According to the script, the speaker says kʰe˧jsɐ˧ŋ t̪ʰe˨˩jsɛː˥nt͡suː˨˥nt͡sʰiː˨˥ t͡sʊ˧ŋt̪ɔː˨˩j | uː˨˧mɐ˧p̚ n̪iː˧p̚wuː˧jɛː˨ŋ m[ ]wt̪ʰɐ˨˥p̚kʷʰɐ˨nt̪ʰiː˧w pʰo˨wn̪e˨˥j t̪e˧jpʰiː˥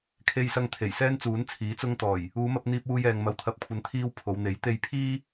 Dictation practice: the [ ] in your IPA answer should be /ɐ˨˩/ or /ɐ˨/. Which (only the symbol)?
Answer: ɐ˨